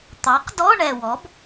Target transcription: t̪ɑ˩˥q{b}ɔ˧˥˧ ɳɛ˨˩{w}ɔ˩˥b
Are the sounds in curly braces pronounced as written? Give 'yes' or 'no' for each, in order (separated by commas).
no, yes